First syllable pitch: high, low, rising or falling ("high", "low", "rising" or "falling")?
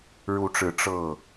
rising